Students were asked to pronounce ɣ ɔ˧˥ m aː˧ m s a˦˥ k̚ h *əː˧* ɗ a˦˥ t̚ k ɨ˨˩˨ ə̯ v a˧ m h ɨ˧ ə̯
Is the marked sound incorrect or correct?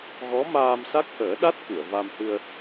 incorrect